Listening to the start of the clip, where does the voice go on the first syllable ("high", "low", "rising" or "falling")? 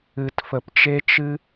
low